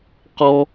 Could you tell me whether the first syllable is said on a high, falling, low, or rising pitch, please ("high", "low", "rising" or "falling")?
high